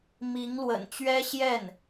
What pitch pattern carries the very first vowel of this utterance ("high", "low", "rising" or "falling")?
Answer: rising